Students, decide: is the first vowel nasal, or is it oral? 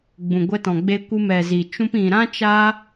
nasal